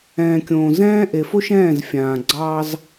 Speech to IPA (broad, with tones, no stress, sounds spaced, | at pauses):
ɛ̃ː˨ kʲ õː˨ z ɛ̃ː˦ ʔ e˨ f o˦ ʃ ɛ̃ː˦˨ z fʲ ãː˨ ɡ͡ǀ ɑ˦ z